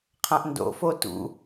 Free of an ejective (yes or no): yes